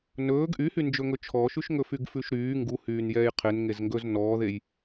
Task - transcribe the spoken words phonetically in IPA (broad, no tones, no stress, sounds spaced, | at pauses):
n ɵː ɡ ʔ y h y n d͡ʒ ɵ ŋ ɵ t͡ʃʰ ɔ ʃ ʉ ʃ ŋ ɵ f y ɡ f ʉ ʃ ɾ yː ŋ ɡ u h yː n j ɛː j qʰ e n ŋ e z ŋ ɡ ɵ z n ɔː ð e j